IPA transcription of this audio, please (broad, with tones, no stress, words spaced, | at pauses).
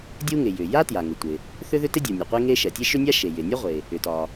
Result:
dʲu˥ŋɪ˩ jʏ˩ja˥ tja˩ŋɪ˩tʷɪ˩ | θʏ˥ ðʏ˥tɪ˥dʲu˩ nʲu˩qʷe˥ŋe˥ʃɛ˩ tʲe˥ʃʏ˥nʲa˥ ʃe˩jɪ˩ nʲɒ˥ʁʷe˩ | ʏ˩tɒ˩